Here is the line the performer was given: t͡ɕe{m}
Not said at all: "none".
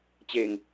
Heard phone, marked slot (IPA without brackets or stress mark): ŋ